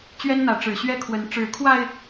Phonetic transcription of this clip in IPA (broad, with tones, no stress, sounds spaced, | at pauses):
t͡ɕ ɥ ɛ˦ n n̪ ä˨˦ ʈ͡ʂ ɻ̩˨˩ ɕ ɥ ɛ˦ kʰ w ə˨˦ n ʈ͡ʂ ɻ̩˨˦ kʰ w a˧ ɪ̯